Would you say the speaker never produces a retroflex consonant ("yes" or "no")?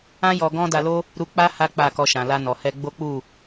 yes